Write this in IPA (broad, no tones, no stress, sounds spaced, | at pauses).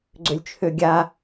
ɡ͡ǀ ø lʲ t͡ʃʰ ø ɡʲ a